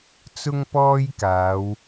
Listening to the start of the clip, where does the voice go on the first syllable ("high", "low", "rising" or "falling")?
high